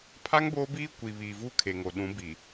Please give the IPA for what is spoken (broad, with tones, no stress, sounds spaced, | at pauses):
pʰ a˦ ŋ b oː˦ b iː˦ kʷ i˨ β iː˨ v u˦ kʰ e˨ ŋ o˨ ɗ ũ˨˦ b i˨